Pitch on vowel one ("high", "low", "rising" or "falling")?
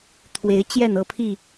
rising